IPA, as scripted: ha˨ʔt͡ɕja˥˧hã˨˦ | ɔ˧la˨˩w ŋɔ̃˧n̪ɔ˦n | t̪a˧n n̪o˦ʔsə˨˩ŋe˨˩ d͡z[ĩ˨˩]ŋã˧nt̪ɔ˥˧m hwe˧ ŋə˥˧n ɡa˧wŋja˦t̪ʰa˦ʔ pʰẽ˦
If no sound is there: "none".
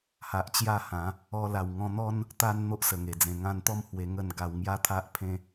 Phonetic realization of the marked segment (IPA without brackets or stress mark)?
ẽ˨˩